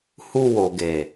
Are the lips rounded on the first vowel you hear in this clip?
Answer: yes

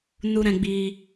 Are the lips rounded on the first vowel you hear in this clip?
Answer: yes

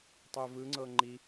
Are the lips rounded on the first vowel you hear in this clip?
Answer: yes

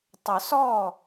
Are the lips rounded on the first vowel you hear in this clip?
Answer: yes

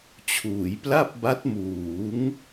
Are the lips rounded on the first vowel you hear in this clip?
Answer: yes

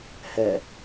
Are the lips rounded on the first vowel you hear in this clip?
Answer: no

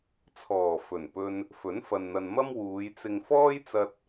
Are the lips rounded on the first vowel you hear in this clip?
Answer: yes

